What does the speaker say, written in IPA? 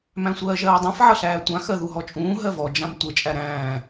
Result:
m æ̃ sʷ ɜː ʒ ɜː dˤ ã f ʕ ʌ ɬ æː tʷ ã x ɜ ð u ɦ ɔ t͡ʃʼ ũː ɦ ɜ v ɔ d͡ʒ ã m tʷ ə t͡ʃʼ æ ɾ æ̃ː

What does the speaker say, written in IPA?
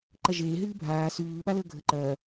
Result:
ǃ ɐ ʒ eː ɦ ɨː bʱ aː s ʉː ɓ a l əː ɡʱ ə ǃ ɐː

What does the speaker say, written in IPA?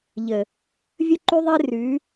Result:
ʎ ə˨ | vʲ ə˦ ǃ y˦ ðˤ e˦ r ʉ˨˦

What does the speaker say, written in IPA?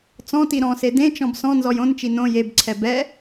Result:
t͡s ɔ̃ t i ɾ ɔ̃ s e d ẽ t͡ʃ ɔ̃ b s ɔ̃ n z ɔ j õ n t͡ʃ i n õ j e b ǀʰ ɛ b ɛ

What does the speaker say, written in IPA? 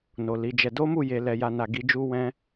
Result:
n o˨ l i˨˦ d͡ʒ ɛ˧ d o˦ m u˦˨ j e˨ l ɛ˨ j a˨ n a˨ ɡ i˨˦ d͡ʒ u˦ w ɛ̃˦

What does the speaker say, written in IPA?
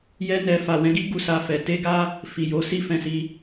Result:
j ɛ˧ n ɛ˨ f a˨ w ɛ̃˨˦ ɡ i˦ ɡ u˧ s a˧ f ɛ˨ t e˧ ɡ a˦ | f i˨ j o˨˦ s i˧ f ɛ̃˨ s i˧

